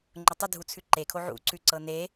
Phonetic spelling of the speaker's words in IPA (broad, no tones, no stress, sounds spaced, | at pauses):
ŋ͡ǃ ʊ tˤ ʊ dʱ u t͡sʰ ʉ ǃ e kʰ o ʕ ṵ ǀ ʉ ǀ ɤ n e